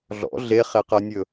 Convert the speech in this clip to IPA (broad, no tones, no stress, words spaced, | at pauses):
ɮɔ̰ ɮeχeqɜnʲɵ